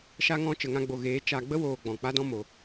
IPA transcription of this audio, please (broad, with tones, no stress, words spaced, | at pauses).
ʃa˧ŋɔ̃˧ t͡ʃə˨ŋã˧ɡ͡bo˨ɣeː˨˦ t͡ʃa˨ɡ͡bə˦woː˨ ɡ͡bɔ̃˨k͡pa˦dɔ̃˦ mo˨